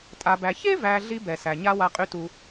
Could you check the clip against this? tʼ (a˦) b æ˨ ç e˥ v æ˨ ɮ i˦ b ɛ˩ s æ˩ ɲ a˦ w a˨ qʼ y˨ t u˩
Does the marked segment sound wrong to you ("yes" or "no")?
yes